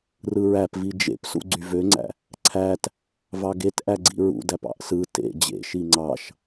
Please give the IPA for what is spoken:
r ɯ ɹ æ p v i d͡ʒ ḛ p s ṵ ɡ͡ǀ y v ø ŋ͡ǀ æ̰ | ǀʰ æ t | v ɑ ɡ e t ʔ æ ɡ͡ǀ ḭ ɹ ṵ d æ p ɑ̰ ʔ s ɯ t ḛ d͡ʑ ḛ ʃ i ŋ͡ǀ ɑ ʃ

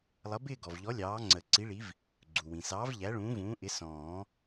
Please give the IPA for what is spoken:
lˠ ʌ˨˥ b ɪː˥˧ ɡ ɔ˩ v ʎ ɔ˨˥ lʲ ɑː˨˥ ŋ͡ǀ ə˨˩˦ ǀ i˨˥ ɭ i˨˥ v | ɡ͡ǀ u˩ w ĩ˩ s ɑː˨˥ v ʎ æ˨˥ ɭ ũː˨˥ v ũː˨˥ ʔ ɪ˨˥ s ɔ̃ː˨˩˦

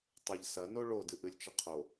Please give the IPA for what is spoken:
tˤ ɐ ʎ s ɐ n o ɭ o d ɨ ʔ ɨ lʲ t͡ʃ ɘ qʰ o

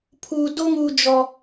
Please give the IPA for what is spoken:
pʰ u˨ d o˦ ŋ u˨ d͡ʒ ɔ˨

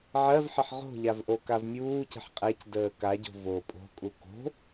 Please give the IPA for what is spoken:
ʕ ɜ v ħ ə ħ ʁ o̤ ʎ a v ʔ o k a v mʲ uː c ə̤ ħ qʼ ɛ c d əː k a ɟ o̤ v o pʼ o̤ kʼ u k o̤

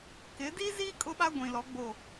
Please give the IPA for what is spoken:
k ɪ˨˦ d i˦ z i˦ kʼ ʊ˦ ɓ a˦ ɡʷ ĩ˨ l ɔ˨˦ ɡ͡b o˦˨

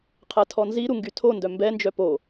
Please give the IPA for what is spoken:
qʰ ɛ tʰ ɔ n z i ɾ u ŋ ɡ y tʰ o n d œ m b ɛ n d͡ʒ œ p o

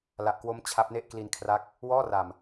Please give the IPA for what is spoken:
l a˨˩ ʔ k w o˦˥ m t͡ɕʰ a˦˥ p̚ n e˥˩ ʔ k l i˧ n kʰ r a˦˥ k̚ | w ɔː˥˩ r a˨˩ m

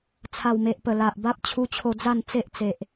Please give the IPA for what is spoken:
t͡sʰ a˨˩ w m e˨ ʔ p ə˨˩ l a˨ ʔ b a˦ p̚ t͡ɕʰ u˧ t͡ɕʰ o˧ d͡z a˥˧ n t͡s e˦ ʔ t͡s e˨ ʔ

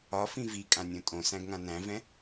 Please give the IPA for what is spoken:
ɒ f ĩ v i kʼ ã nʲ õ tʼ õ s æ̃ ɡ ŋ ã n æ̃ v ɛ̃

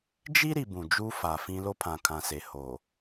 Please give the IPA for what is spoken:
d͡ʒ i˦ ɾ i˨ b ũ˨ d͡ʒ uː˦ f a˨ f ĩ˦ l o˦ pʰ ã˨ kʰ ã˨ s e˨ h oː˨

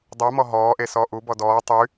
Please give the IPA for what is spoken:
dˤ u m ɔ ɦ ɔː ʔ e s ɔː ʔ u b ɔ d ɔː tˤ y

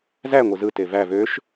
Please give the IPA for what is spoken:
z æ ŋʷ ɯ z ɯ t e v æ v ø ʃ

